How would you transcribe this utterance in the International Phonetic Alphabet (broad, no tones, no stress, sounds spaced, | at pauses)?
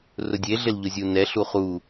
r ʊ dʲ e ɮ ɪ l ʎ ʊ zʲ u n ɛ ɬ u χ u